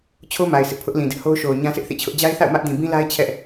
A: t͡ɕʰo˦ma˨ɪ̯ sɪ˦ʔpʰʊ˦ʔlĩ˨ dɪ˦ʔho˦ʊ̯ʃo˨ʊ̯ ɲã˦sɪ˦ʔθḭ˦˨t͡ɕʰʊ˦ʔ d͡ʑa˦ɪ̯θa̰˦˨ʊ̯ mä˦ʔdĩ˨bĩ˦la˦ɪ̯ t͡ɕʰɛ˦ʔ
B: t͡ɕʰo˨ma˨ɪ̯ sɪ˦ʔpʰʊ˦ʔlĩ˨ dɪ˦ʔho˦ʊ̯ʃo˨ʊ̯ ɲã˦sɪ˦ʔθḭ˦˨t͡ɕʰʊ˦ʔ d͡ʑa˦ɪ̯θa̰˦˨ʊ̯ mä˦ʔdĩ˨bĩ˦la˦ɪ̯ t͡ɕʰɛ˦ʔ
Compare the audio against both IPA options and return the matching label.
A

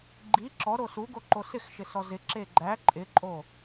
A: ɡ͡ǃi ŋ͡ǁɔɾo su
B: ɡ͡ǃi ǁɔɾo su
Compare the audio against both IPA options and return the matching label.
B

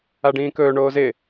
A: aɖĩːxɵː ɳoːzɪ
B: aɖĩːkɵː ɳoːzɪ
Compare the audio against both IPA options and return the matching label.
B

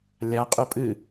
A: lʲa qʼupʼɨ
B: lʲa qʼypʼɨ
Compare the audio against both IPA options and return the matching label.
A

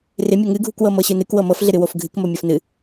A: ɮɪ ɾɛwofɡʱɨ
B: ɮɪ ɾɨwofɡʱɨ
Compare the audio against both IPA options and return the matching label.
B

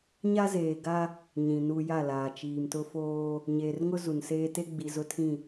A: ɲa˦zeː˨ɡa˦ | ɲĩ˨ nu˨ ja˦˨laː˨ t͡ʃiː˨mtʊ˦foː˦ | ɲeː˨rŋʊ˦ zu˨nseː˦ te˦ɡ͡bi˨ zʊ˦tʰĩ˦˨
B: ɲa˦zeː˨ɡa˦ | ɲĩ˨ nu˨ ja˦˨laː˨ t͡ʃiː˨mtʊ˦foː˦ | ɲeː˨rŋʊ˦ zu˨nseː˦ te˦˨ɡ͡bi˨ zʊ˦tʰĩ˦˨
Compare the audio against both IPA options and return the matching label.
A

